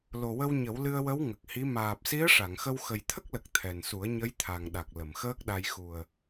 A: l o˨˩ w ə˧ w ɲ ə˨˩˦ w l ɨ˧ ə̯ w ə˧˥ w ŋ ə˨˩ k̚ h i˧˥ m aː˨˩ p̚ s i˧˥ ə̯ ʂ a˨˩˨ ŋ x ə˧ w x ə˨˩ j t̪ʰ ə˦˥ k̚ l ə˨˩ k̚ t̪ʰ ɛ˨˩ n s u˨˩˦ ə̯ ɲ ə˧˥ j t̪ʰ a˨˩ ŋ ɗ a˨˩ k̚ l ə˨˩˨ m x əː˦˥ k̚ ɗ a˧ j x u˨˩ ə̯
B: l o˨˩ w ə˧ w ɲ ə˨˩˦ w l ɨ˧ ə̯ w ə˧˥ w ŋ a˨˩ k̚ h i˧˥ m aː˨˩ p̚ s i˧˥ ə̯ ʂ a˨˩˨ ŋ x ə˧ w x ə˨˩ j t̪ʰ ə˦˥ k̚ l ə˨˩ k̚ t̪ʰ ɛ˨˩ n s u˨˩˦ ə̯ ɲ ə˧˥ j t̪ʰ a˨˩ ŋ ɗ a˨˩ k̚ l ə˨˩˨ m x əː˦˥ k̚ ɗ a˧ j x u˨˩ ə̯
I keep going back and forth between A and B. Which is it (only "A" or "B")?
A